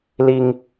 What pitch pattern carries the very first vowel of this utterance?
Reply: high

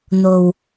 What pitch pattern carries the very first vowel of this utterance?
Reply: low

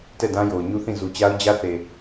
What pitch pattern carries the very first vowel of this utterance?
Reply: falling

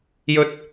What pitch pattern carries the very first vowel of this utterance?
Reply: high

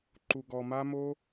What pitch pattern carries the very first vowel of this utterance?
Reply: low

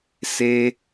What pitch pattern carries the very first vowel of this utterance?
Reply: high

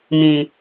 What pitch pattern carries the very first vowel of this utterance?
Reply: low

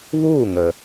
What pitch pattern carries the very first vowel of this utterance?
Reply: falling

